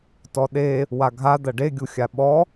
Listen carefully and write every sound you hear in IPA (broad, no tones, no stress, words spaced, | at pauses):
tɔɗe | waɡʱa d̪ɐɖe ɡʲuxʲaɓɔ